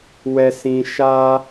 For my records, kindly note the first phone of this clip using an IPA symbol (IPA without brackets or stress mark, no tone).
w